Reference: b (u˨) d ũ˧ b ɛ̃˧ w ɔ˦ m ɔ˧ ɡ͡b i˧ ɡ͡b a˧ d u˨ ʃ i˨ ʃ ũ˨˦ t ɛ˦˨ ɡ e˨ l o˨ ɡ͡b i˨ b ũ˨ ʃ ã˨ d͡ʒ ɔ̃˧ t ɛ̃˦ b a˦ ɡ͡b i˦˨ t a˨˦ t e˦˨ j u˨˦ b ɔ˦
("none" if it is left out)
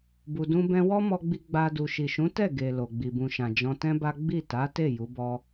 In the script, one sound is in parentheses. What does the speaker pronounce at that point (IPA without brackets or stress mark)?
u˨